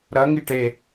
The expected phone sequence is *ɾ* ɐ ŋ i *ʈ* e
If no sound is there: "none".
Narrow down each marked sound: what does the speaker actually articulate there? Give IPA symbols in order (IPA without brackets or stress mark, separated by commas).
ɾ, ʈ